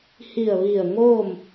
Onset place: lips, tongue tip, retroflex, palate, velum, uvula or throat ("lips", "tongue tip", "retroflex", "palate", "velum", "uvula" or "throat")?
throat